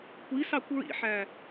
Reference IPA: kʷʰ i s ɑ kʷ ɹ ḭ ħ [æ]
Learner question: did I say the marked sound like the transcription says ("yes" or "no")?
yes